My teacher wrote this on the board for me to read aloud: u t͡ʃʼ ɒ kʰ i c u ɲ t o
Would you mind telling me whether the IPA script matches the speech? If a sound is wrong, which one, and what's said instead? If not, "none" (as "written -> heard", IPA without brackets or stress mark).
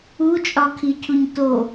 c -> cʰ